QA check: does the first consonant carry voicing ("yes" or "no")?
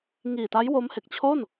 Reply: yes